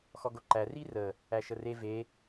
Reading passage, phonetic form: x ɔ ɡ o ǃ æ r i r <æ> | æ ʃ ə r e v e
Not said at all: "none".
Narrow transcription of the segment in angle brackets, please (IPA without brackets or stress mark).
ə